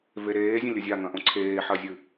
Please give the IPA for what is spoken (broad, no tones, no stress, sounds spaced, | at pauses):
v e ɾ eː zʲ ɐ̃ lʲ ɵ zʲ a ŋ ɐ̃ ʔ õ ǀʰ eː ħ ɐ zʲ ɨ